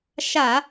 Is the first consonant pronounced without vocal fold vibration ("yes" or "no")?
yes